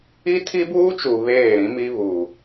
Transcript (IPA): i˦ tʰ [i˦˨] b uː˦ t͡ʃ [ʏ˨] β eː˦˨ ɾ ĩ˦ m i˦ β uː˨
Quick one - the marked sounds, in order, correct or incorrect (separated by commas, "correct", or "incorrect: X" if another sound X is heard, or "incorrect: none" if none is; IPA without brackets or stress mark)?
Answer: incorrect: i˦, incorrect: u˨